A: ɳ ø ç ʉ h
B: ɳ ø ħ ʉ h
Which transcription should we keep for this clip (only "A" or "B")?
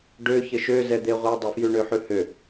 B